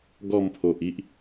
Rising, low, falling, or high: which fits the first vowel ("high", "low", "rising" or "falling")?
falling